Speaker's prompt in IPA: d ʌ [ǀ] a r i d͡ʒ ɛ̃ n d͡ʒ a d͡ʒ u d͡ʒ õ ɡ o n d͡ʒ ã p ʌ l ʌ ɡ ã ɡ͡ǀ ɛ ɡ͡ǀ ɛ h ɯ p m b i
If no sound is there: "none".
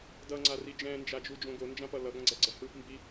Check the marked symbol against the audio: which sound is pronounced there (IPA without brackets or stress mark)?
ŋ͡ǀ